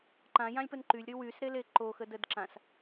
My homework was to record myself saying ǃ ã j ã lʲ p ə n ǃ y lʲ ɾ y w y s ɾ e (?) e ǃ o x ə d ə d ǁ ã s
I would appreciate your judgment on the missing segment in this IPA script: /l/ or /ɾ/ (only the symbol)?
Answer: l